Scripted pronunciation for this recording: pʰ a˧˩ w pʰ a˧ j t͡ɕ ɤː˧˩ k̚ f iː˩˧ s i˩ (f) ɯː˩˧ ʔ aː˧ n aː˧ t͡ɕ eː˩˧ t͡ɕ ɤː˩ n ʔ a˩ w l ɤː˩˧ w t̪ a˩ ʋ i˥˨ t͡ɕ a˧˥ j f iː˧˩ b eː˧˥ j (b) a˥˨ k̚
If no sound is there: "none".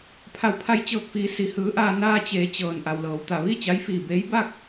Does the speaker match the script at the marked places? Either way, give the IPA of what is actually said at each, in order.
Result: h, b

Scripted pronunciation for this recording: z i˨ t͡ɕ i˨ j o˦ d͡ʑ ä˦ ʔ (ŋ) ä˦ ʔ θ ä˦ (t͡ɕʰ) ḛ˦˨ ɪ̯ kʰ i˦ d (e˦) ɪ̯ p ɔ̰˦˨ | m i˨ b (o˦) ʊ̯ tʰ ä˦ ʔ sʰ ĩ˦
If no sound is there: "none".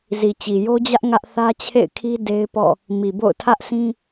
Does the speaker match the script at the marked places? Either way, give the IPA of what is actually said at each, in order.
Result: ŋ, t͡ɕʰ, e˦, o̰˦˨

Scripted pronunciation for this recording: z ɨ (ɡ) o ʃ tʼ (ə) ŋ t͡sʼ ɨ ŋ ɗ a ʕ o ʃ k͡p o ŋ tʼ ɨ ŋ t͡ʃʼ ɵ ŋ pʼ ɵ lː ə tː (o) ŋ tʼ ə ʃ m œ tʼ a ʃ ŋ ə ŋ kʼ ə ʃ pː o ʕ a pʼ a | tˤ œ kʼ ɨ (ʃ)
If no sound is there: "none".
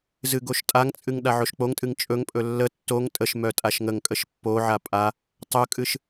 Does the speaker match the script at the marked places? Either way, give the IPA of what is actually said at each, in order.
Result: ɡ, a, o, ʃ

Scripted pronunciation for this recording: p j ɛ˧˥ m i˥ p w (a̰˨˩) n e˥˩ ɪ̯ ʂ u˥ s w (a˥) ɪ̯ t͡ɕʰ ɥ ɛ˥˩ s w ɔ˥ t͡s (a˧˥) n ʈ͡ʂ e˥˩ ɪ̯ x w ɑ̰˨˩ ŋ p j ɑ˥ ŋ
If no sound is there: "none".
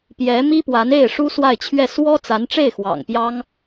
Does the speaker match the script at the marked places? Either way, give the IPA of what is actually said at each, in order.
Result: a˧˥, a˥˧, a˧˥

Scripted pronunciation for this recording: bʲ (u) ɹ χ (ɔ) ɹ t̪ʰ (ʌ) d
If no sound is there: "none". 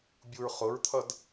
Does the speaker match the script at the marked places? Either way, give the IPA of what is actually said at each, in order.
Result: u, ʊ, ʌ

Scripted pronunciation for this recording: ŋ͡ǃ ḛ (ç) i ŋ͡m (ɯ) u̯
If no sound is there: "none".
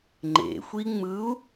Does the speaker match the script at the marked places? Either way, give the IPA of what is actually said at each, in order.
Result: xʷ, ɯ

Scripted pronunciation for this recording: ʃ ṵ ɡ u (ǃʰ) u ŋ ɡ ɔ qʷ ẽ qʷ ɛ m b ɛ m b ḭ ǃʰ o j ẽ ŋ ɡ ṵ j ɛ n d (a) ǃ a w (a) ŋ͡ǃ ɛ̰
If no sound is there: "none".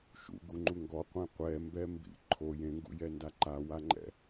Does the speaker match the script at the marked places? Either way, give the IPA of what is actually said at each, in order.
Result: ŋ͡ǃ, a, a

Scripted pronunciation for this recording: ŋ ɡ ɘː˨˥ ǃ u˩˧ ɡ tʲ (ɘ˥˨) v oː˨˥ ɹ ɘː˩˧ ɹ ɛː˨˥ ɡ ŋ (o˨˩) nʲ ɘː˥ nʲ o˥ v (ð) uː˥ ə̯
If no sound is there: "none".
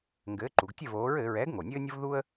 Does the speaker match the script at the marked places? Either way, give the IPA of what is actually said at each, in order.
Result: ɘ˥˨, o˨˩, ð

